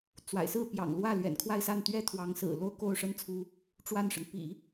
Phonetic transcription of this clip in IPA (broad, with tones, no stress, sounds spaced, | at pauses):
t͡s w a̰˨˩ ɪ̯ s ɹ̩˥˩ p j ɑ̰˨˩ ŋ l w ä˥˩ l ɥ ɛ̰˨˩ n kʰ w a˥˧ ɪ̯ s a˥˩ n t̪ ɥ ɛ˥ t̪ʰ w ɑ˧˥ ŋ s ɹ̩˨˩ l o˥ ʊ̯ k o˥˩ ʊ̯ ʂ ə˥ n t͡sʰ u˧˥ | ʈ͡ʂ w a˥˩ n ʂ ə˩ n p ḭ˨˩˦